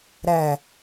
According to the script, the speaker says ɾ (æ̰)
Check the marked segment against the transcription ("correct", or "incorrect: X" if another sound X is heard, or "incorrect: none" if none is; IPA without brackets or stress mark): incorrect: æ